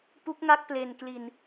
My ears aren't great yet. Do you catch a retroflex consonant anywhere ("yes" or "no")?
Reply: no